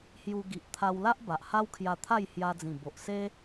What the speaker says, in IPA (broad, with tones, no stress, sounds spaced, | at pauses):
h j u˧ ɡ i˨ ʔ t̪ʰ a˧ w l a˦ ʔ b a˨ ʔ h a˦ w kʰ j a˧ t̪ʰ a˥˧ j h j a˧ d͡z ĩ˨˩ b o˨ ʔ s e˦